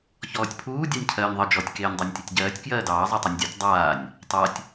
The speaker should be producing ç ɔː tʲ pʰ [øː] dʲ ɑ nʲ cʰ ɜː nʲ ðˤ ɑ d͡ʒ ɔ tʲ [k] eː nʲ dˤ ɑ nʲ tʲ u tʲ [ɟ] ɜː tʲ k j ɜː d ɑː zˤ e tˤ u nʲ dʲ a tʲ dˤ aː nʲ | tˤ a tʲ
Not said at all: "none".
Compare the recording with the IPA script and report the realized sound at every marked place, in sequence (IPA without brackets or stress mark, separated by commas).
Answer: uː, k, ɟ